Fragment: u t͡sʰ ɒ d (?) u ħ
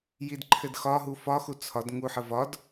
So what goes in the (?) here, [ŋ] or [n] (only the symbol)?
ŋ